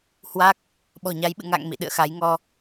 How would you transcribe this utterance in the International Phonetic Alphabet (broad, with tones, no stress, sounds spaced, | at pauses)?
h w a˦˥ k̚ | ɓ ɔ̤˨˩ ɲ a˨˦ j ɓ ɨ̰˧˨ ŋ a̰˧˨ ŋ m ḭ˧˨ ɗ ɨ̰˧˨ ə̯ x a˨˦ j ŋ ɔ˧